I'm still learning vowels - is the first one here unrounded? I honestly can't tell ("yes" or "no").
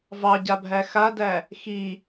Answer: yes